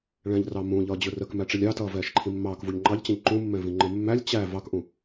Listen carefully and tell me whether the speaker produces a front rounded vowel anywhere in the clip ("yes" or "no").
no